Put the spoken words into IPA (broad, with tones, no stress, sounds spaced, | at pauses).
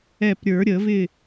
ɛ˧˩ p ɾʲ ə˞˨˩˦ ɾʲ ə˨˩˦ v ɪ˥˨